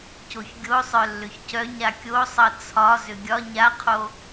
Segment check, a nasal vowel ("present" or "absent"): absent